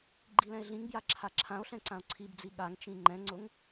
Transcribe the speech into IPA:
ɡ͡ǃilɛ̃e̯ɮĩŋbja ǁʰaǁʰão̯ɬɛ̃ ǀão̯ǀʰibd͡zi ɠaŋt͡ʃĩ ŋ͡ǃɛ̃ŋ͡ǀʊŋ

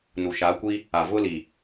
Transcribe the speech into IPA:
nu˨ʃa˨˦kʷi˦ | a˨vʊ˦li˨

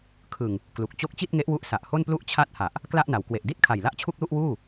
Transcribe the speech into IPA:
kʰɯ˨˩ŋ | klu˨˩k̚ t͡ɕo˦˥k̚t͡ɕi˥˩t̚ŋe˦˥ʔwu˦˥ʔ sa˨˩ʔho˥˩nplu˥˩ʔ t͡ɕʰa˥˩t̚ ha˨˩ʔ | kla˥˩ʔna˩˦w kwe˨˩ʔdi˥˩t̚kʰa˨˩jla˦˥ʔ t͡ɕʰu˥˩k̚lu˥˩ʔwuː˥˩

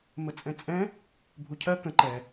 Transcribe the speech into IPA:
mət͡sʼɛ̃t͡sʼɛ̃ | bʱucʰɜ kə̃ ǃɛ

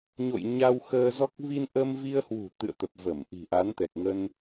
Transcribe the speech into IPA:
ɲo̰˧˨j ɲa˧w xəː˧zɔ˦˥k̚ vi˧nʔə˧mvi˧ə̯hwṳ˨˩ t̪ɨ̰˧˨ə̯t̪ə˨˩p̚ və˧˩m ʔi̤˨˩ʔa˨˦nt̪ɛ˨˩k̚ ŋə˧n

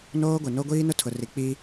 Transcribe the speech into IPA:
noː˦ɡʷe˨ no˦ ɡʷiː˦nʊ˦tʰʊ˨ri˨ k͡piː˦

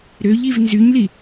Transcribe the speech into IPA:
ɾøʎiv nzyɲli

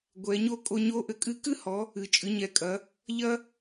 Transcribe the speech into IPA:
ɡʷɛ˩˧ɲo˥ kʼo˧ɲo˧˥ ʔɘ˩˧kʼɨ˧˥kɨ˥hɔ˩˧ | ɨ˩t͡ʃʼɨ˩˧ɲɛ˩˧kʼɐ˩˧ | ʎɐ˥

